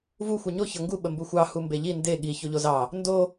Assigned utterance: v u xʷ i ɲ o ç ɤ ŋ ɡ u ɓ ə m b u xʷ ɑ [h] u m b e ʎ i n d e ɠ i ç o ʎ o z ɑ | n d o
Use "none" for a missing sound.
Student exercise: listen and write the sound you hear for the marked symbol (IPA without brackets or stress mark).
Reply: h